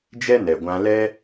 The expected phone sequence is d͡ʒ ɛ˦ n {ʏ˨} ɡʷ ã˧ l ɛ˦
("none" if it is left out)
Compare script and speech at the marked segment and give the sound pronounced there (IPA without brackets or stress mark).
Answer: ɛ˨